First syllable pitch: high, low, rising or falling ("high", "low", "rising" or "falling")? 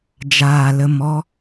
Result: low